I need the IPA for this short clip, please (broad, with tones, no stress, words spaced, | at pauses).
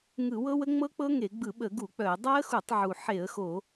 ŋɯ˧˩˧wɤ˦˥wə˦˥ ŋ͡mɤ˦˥k͡pɤ˦˥ŋe˧˩˧ ɡ͡bɯ˧˩˧ɓə˧˩˧ ɡu˧˩˧k͡pœ˧˩˧ə̯ dˤa˦˥ə̯xu˧˩˧tˤʕu˨˩ ħe˧˩˧ə̯xo˧˩˧